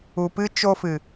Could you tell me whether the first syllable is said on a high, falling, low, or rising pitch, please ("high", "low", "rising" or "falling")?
low